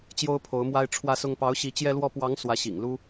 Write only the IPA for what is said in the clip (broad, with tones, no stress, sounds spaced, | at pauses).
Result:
t͡ɕ j o˥ ʊ̯ pʰ o˧˥ ʊ̯ m w a˥ ɪ̯ ʈ͡ʂʰ w ä˥ s ʊ˥ ŋ p ɑ˧˥ ʊ̯ ɕ i˧˥ t͡ɕ j ɛ˥ l w ɔ˥ p w ɑ˧˥ ŋ s w ä˧˥ ɕ ḭ˨˩ ŋ l u˥